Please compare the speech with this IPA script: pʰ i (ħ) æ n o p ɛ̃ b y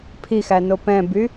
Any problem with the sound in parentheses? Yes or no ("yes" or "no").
yes